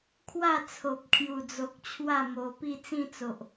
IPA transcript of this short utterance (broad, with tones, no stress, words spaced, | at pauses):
kʰwa˥˧t͡sʰo˨p̚kʰju˨˩d͡zo˨k̚ t͡ɕʰwa˥˧mo˧ pi˥˧t͡sĩ˥˧t͡so˨ʔ